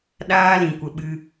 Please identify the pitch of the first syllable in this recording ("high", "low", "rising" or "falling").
high